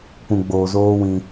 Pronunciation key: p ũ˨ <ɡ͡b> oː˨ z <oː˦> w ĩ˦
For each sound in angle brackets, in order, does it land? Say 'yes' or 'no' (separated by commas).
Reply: yes, yes